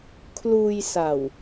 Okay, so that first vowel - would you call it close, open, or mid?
close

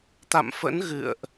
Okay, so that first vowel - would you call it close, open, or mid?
open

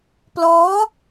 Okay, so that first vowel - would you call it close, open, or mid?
mid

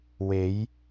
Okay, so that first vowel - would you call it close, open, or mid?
mid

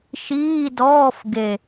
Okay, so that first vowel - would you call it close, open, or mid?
close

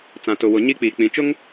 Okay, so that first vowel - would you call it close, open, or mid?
open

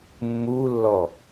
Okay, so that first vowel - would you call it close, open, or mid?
close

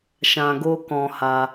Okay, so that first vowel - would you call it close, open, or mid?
open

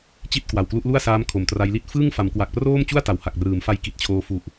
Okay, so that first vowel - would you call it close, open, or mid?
close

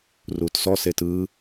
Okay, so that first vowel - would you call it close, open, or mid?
close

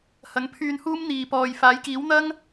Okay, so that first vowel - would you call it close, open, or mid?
open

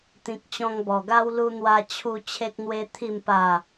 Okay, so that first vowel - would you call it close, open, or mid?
close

